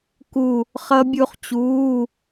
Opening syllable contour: falling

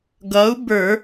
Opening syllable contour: rising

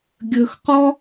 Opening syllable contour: low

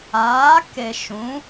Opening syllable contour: rising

